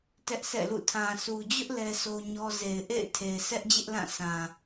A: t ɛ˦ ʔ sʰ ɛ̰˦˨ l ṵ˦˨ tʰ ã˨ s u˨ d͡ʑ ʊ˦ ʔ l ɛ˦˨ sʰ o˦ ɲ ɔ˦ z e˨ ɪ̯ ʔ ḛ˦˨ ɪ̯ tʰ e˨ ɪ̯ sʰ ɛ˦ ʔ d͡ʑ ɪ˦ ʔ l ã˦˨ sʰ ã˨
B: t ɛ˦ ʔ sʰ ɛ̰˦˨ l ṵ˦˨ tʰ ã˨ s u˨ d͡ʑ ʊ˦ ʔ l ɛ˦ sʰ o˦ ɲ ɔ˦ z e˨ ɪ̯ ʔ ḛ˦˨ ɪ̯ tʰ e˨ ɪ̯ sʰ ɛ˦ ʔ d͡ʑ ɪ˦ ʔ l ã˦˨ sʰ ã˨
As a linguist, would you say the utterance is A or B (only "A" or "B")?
B